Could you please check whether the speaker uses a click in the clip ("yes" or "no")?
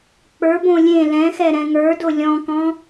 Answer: no